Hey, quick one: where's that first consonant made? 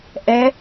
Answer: throat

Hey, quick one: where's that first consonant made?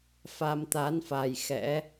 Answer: lips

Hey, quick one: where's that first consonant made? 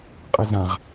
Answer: uvula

